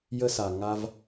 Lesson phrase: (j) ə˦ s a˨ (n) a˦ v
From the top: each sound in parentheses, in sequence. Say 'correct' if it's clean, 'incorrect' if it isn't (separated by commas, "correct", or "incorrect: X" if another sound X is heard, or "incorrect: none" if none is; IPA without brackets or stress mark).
correct, incorrect: ŋ